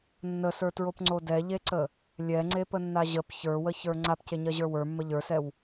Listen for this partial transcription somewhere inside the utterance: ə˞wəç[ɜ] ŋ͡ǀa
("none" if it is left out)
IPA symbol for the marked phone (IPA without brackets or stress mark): ə˞